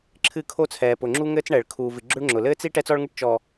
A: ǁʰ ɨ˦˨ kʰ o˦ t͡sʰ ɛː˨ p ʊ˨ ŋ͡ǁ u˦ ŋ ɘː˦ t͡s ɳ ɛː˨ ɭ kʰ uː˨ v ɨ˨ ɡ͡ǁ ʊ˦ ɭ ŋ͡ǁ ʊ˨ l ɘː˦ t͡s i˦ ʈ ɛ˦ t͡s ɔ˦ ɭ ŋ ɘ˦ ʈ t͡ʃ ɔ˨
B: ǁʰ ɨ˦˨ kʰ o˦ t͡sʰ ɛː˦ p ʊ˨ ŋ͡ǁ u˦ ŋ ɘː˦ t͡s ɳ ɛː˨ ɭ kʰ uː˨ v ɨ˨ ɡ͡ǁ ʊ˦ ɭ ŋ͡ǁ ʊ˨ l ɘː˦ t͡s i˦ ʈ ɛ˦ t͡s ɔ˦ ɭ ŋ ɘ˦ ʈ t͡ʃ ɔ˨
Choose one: A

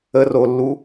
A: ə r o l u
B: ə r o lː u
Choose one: B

